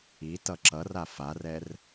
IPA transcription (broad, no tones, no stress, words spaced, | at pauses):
i tʌǁʌra farɛr